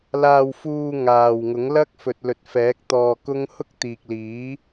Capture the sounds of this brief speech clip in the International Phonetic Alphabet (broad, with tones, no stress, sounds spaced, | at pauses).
l aː˧ w f uː˧ ŋ aː˨ w ŋ ʊ˨˥ ŋ l ɐ˥ k̚ f ɵ˨ t̚ l ɵ˨ t̚ f ɛː˨˥ k̚ t̪ ɔː˧ k ʊ˥ ŋ h ʊ˥ k̚ t̪ iː˨ k̚ l iː˨˥